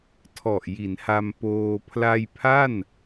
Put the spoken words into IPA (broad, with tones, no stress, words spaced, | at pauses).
tʰɔ˨˩ʔji˩˦nha˧m poː˧ pʰla˧jpʰa˥˩n